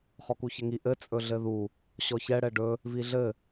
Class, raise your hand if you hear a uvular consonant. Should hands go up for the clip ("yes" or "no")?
yes